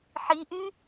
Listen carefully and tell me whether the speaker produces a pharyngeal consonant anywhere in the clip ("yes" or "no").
yes